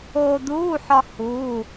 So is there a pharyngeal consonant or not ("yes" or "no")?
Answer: yes